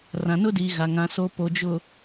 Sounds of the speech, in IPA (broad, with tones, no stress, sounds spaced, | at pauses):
r ã˨ n ʊ˦ d iː˨ ɣ a˨ ŋ ã˨ s o˨ p o˨ d͡ʒ ʊ˨